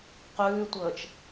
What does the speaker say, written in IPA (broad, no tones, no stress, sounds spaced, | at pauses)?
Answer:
q ʉː tʷ əː t͡ʃ